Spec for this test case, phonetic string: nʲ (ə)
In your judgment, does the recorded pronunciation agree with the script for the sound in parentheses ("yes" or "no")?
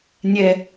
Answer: no